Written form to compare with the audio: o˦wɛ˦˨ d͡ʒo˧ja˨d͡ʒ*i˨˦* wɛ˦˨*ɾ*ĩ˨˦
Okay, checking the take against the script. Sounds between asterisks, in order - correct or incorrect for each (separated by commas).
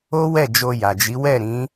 correct, correct